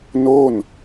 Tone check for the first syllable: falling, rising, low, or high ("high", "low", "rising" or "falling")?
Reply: falling